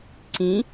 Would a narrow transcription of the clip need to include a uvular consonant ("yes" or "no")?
no